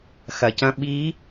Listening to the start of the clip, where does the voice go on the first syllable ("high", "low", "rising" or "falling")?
low